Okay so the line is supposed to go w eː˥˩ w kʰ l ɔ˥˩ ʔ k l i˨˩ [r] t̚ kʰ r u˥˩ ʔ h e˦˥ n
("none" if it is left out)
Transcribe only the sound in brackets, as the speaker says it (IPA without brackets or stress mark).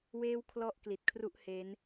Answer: none